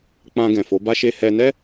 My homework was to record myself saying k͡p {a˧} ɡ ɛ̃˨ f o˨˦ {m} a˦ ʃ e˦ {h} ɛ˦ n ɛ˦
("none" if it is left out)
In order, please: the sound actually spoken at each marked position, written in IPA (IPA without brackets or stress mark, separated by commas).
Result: ã˧, b, h